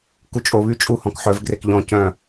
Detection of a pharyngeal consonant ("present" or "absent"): present